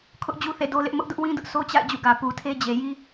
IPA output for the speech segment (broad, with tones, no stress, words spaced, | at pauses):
kʰʊ˦ʔd͡ʑu˦θḛ˦˨ do˦lɪ˦ʔ mʊ˦ʔdʊ˦ʔwĩ˦dʊ˦ʔ sʰo˦t͡ɕa̰˦˨ɪ̯ d͡ʑṵ˦˨ɡä˨ pu˨tʰe˦d͡ʑe˨ ji˦